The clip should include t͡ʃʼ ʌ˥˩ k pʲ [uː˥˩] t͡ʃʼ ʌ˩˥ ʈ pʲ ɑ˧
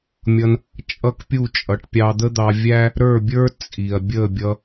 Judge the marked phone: incorrect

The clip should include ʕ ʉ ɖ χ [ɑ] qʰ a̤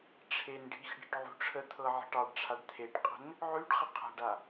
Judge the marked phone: incorrect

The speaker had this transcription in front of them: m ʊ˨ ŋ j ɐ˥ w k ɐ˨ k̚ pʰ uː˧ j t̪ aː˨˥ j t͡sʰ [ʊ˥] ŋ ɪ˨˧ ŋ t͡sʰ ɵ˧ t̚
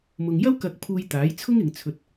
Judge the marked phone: correct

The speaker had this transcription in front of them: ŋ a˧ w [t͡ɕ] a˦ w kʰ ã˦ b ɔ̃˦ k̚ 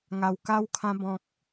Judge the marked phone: incorrect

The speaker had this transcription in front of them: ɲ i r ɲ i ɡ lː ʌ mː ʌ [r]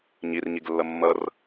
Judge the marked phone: correct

